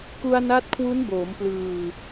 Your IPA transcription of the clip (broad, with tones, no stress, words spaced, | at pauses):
ku˧a̯na˦˥t̚kʰwu˦˥n boː˩˦mplɯː˨˩